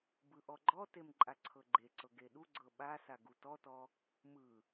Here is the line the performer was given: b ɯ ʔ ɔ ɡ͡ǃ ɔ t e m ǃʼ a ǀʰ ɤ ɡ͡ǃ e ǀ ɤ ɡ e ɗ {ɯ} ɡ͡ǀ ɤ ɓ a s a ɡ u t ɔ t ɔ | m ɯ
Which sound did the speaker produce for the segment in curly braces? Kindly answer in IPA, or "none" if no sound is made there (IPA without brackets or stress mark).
u